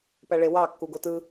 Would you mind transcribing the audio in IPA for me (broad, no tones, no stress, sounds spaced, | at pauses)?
p æ ɭ e w ɑ kː u ɡ o t ɯ